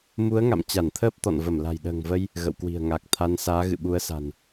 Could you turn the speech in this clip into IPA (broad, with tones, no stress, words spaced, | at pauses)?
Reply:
mu˨˦ə̯ŋa̰˧˨m t͡ɕa˧˩nt̪ʰəː˦˥p̚t̪ɔ̰˧˨n və˧˩mla̤˨˩jɗə̤ː˨˩ŋvə˧j | ɣə̰˧˨wkwi̤˨˩ə̯ ŋa˨˩k̚t̪ʰa˧n saː˨˦ɣɨ̰˧˨ɓu˨˦ə̯sa̤˨˩n